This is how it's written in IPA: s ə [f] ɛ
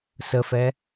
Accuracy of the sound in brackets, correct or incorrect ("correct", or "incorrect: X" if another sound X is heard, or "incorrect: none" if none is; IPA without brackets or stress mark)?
correct